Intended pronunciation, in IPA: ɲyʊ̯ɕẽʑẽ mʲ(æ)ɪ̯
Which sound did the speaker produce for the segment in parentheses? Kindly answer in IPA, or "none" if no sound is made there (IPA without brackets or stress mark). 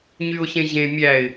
æ